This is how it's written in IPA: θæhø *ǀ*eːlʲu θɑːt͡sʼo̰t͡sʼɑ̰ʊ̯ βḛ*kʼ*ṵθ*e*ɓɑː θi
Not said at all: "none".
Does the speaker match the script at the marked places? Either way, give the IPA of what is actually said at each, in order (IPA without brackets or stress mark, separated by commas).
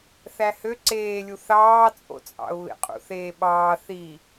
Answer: ǀ, qʼ, eː